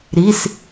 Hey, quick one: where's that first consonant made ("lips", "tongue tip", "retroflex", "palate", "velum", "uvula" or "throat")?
tongue tip